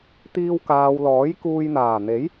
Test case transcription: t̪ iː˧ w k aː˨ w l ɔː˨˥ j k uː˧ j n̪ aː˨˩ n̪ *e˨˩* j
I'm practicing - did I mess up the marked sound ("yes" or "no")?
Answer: yes